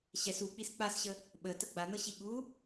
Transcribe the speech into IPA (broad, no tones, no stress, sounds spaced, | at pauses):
ɕ ɛ s u k͡p i s k͡p a s ɕ ə | ɓ ə t ə ɡ͡b a n ɤ ɕ i ɠ u